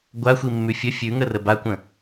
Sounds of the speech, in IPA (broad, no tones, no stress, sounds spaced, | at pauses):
ɡʷ a xʷ i mː ʉ fʲ ə fʲ ʉ ŋ ə r ə b a kʷ ə̃